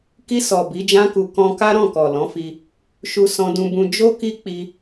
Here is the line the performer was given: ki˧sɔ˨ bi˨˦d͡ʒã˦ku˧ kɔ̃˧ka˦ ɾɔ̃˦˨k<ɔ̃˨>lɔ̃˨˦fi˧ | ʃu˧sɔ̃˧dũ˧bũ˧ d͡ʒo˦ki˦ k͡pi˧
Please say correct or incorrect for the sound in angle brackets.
incorrect